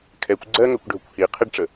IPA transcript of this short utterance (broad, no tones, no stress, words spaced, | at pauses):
kʰɛkʷ ɡ͡ǀɜŋɜkʷɖʱəkʷ hi qʰɪɖʈ͡ʂə